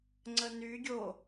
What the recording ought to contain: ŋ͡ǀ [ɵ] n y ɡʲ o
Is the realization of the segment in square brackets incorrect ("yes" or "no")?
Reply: yes